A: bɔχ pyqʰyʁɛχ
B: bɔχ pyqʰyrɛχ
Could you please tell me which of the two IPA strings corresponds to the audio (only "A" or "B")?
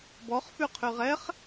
A